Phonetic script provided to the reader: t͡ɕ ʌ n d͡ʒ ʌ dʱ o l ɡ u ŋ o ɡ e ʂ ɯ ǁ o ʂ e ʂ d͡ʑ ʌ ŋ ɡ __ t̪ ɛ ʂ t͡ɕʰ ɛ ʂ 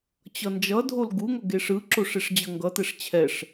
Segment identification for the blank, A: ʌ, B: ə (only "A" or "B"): A